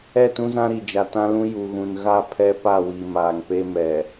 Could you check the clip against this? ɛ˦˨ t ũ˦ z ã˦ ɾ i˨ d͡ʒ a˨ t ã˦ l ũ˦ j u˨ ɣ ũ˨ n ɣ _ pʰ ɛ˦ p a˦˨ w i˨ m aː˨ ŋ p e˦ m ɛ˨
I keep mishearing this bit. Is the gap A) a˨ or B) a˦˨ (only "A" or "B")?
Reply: B